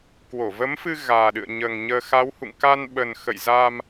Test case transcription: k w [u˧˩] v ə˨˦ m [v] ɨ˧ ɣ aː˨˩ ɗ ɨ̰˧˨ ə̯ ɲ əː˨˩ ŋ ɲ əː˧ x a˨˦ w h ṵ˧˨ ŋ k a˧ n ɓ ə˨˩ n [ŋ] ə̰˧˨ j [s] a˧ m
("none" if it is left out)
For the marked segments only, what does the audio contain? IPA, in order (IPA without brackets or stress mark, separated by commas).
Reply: o˧˩, f, x, z